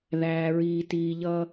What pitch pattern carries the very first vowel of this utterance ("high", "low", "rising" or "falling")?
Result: low